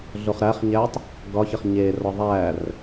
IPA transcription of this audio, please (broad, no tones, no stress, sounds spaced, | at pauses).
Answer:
ɮ o χ ɾ æ χ ɲ æ tˤ | ɡ ɒ ç e χ ɲ e r ɒ ðˤ æ r